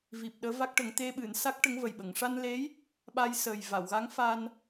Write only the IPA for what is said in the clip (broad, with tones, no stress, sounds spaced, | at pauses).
v i˨˩ p̚ ɗ əː˧˥ v a˦˥ k̚ ʈ ə˨˩˦ ŋ t̪ e˧ ɓ ɨ˨˩˨ n s a˦˥ k̚ ʈ ə˧˥ ŋ v ə˨˩ j ɓ ə˨˩˨ ŋ ʂ a˧ n l e˧˥ j | ɓ a˧ j s əː˨˩ j v a˨˩˨ w ɣ a˧˥ ŋ f a˧ n